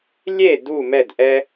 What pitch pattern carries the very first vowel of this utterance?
falling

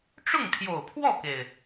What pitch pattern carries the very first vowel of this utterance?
falling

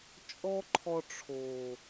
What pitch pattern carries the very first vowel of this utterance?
high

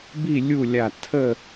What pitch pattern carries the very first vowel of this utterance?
falling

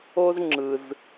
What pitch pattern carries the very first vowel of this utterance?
high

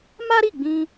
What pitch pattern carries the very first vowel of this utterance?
high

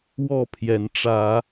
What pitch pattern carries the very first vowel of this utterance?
falling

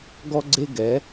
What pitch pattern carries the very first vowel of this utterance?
high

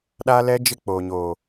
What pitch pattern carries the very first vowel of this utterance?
high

